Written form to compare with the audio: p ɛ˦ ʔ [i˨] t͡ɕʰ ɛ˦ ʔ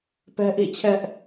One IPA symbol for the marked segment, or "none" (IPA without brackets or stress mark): ḭ˦˨